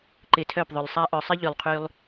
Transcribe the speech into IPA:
ǃ ɪ˨ tʰ œ˦˨ p ðˤ ʏ˨ lˠ sˤ a˧ ʔ œ˨ sˤ ɪ˦ ʎ y˨ lˠ qʰ y˦ lˠ

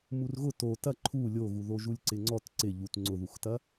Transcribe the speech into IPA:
m u r ɣ ʊ t o t ɐ ǃʰ u lʲ o ɣ u ð o ʒ u lʲ ǀ ɪ ŋ͡ǀ ɔ t ǀ ɪ ʎ u t ŋ͡ǀ ʊ ð u x t ɐ

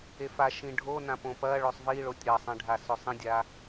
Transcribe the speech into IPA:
e f a ʃ ĩ ɖʱ o n ã p õ p ɐ ɭ ɵ sˤ v i ɭ o tʲ ɾ ɐ sˤ ẽ ɖʱ a s ɵ sˤ ĩ dʲ a

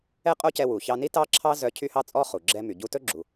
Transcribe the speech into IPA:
ɛ˥ qʼ o˥ c ɛ˧ w u˩ ç ɑ˧ n i˥ t ɑ˥ ǁʰ ɑ˥ z œ˧ cʰ y˥ h ɑ˥ t͡sʼ ɔ˥ χ u˩ ɡ͡ǁ ɛ˧ m y˩ ɟ u˧ t ɵ˥ ɡ͡ǁ u˩

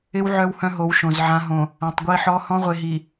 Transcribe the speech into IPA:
ɪ˦ w ʕ œ˦ w h œ̃˦ ɦ o˨˦ w ʃ õ˨ z ʕ ã˨ ɦ õ˨ | ã˨ tˤ ɡʷ i˦ ħ ɔ˦ h ɔ̃˦ ʁʷ e˨ ɦ i˨

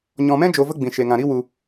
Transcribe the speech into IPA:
ɲ ɔ̃˧ m ɛ̃˦ d͡ʒ o˧ v ə˦ ɡ͡b ĩ˨ ʃ e˨ ŋ ã˨ ɾ i˦ w u˧

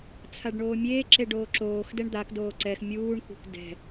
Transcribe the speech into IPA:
t͡sʰ a ɖ ɳ oː mʲ eː ǁ e ɖ oː ǁ oː x d ɛ ɳ d̪ a k d oː ǀ ɛ x mʲ uː ɳ kʷ ɛ̤ kʷ d ɛ̤

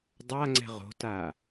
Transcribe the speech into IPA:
dˤ a ŋ͡ǀ ɛ̤ ʁ o̤ t a

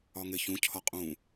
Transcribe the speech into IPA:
ɒ ŋ e ç ũ cʰ ɒ qʼ ũ

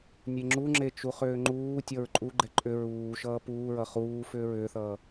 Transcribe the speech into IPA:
nʲ e ŋ͡ǁ u ŋ͡ǁ e t͡ʃ u χ ʏː ŋ͡ǃ uː tʲ ʌ ɹ ǃʼ u ɡ͡ǃ ɛ ǃʼ ʏ ɹ uː ʃ ʌː p uː ɹ ʌ χ uː f ʏː ɹ ʏː θ ʌː

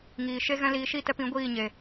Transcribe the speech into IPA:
ŋ iː˨ ʃ e˦ ɣ ɛ̃˧ l iː˨ ʃ i˦˨ t ɛ˧ p ĩ˨˦ ɡʷ iː˦˨ ɲ e˨

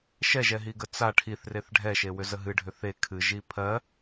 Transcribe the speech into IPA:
ʃ ɛ ʒ ɛ ɦ i ɡ ə t͡s a ʈʰ i θ r e θ ɖʱ ɛ ʃ e w ʏ z ə ɦ ɨ ɖʱ ʏ θ e kʰ ɨ ʒ i pʰ ɜ

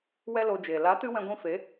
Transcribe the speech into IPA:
w ɛ˦ l o˧ d͡ʒ eː˨ l a˨˦ t ɨ˧ w ɛ̃˧ ɡʷ ĩ˧ f e˨˦

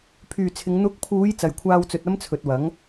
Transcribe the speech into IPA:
pʰ yː˨ t͡sʰ ɪ˨˧ ŋ n̪ ʊ˨˥ k̚ pʰ uː˨˧ j t͡s ɐ˨ j kʷʰ aː˧ w t͡s ɵ˨ t̚ ɐ˥ m t͡sʰ ɵ˨ t̚ w ɐ˨˥ ŋ

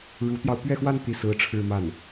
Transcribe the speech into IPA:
ɻ u˧˥ t̪ j ɑ˧ ʊ̯ p ɥ ɛ˥˧ x w a˥˧ n t̪ i˥˩ s ɹ̩˥ ʈ͡ʂʰ ɻ̩˥˧ m a˥˩ n

